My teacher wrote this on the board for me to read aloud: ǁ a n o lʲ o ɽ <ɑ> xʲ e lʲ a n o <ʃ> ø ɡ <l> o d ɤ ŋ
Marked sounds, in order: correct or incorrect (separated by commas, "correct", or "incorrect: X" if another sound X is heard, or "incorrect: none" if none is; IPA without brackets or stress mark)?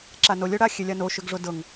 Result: incorrect: a, correct, incorrect: ʐ